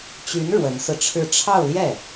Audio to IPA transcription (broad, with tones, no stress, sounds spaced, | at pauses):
t͡ɕ y˧˥ n ɻ w ə˧˥ n s ɹ̩˧ ʈ͡ʂʰ ɻ̩˥˧ ʈ͡ʂʰ ɑ˥˧ ʊ̯ l j ɛ˥˩